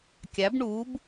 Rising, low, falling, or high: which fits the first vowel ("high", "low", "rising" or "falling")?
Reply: rising